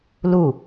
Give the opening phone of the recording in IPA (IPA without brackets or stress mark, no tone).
l